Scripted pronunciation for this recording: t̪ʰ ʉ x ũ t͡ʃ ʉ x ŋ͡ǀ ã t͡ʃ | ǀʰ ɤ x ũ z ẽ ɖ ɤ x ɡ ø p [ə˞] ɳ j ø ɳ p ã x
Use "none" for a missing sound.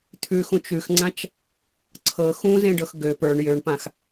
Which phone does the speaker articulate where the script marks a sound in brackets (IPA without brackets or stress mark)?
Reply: ə˞